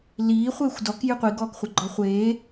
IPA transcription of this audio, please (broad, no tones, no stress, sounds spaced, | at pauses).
l iː χʷ eː xʷ d ɔ k j ɨ qʷ i ɡ ɔː k χʷ ɐ ɡ͡ǃ ɔ χʷ eː